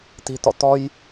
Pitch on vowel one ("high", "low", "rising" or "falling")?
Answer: low